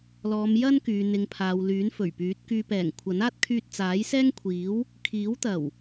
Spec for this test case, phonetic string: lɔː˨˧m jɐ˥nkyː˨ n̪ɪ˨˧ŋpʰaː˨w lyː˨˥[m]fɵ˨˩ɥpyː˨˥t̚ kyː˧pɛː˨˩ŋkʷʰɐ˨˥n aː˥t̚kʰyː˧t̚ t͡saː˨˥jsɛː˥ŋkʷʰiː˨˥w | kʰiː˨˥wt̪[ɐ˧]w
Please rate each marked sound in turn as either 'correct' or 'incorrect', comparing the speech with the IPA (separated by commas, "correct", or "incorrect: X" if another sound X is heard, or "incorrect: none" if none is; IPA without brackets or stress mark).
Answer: incorrect: n, incorrect: ɐ˨˩